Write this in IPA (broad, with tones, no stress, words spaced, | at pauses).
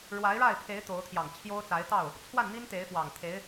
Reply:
ɻwa˧˥ɪ̯ɻa˥˩ɪ̯pʰe˧˥ɪ̯ t̪o˧˥ʊ̯t̪ʰjɑ˨˩ŋt͡ɕʰjo˥ʊ̯t͡sa˧˥ɪ̯ t̪ɑ˥˩ʊ̯ | t͡sʰwa˥˩nn̪i˥n t̪e˧˥ɪ̯fwɑ˨˩ŋ t̪ʰe˧˥ɪ̯